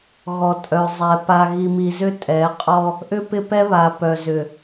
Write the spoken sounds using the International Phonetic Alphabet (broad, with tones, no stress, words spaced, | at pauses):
ɣɔ˨tʼœ˨zˤɛ˨ pa˨ɣi˨mi˨zʏ˦ tʼɛ˨˦ qʼɔ˦ | ʔʏ˦pɪ˦pɛ˦βa˨ pœ˨zʏ˨